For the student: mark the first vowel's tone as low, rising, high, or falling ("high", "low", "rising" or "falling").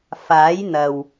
rising